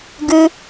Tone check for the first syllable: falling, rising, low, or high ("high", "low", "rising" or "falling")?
low